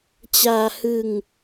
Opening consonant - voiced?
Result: no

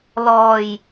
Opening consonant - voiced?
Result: yes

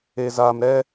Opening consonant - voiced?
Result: yes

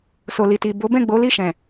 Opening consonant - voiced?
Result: no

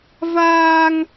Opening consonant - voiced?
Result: yes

